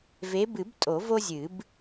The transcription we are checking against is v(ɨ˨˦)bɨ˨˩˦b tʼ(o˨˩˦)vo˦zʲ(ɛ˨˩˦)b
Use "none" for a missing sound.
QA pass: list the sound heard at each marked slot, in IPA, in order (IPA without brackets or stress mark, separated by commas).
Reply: e˨˦, o˨˩˦, ɨ˨˩˦